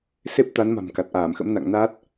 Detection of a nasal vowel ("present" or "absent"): absent